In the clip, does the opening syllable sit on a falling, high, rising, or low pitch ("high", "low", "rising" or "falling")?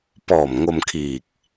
low